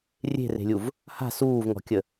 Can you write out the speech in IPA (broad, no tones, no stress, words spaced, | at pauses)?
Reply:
rʲe̤re̤lʲuv | ha̤ suːvŋɔ̤kʲə